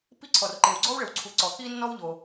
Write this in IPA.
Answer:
pi˥ǀʰɔ˩rǃe˩w ɡ͡ǀɔ˥wɭɘ˩wǀʰu˩ ǀɔ˩ xi˥nːɔ˥wʎo˩

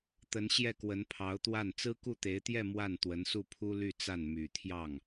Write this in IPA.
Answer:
t̪ə˧˥nɕjɛ˥˩kwə˧˥n pʰɑ˧˥ʊ̯t̪wa˥˩n t͡sɹ̩˥ku˥˩t̪e˧˥ɪ̯t̪jɛ˥˧ mwa˥˩n t̪wə˧˥nsu˥˩pʰu˥ ly˥˧t͡sa˥˩n my˨˩ t̪ʰjɑ˥˩ŋ

